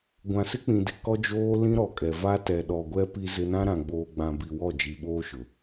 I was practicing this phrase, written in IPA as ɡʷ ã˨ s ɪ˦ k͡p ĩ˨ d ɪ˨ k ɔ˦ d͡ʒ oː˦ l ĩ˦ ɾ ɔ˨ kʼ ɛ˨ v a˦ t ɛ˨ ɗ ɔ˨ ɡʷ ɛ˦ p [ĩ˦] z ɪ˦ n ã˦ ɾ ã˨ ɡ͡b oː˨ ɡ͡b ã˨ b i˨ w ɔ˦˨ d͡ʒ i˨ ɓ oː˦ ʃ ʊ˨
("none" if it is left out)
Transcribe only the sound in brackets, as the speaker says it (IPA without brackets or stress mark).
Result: i˦